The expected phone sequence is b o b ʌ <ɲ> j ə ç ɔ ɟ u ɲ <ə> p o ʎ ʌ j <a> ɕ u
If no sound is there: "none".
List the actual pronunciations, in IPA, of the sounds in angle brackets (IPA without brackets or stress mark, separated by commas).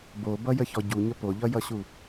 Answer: none, ə, ʌ